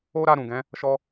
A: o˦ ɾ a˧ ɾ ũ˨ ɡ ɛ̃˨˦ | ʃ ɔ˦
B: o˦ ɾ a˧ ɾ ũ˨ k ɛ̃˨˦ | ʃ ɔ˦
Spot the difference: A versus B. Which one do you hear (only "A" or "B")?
A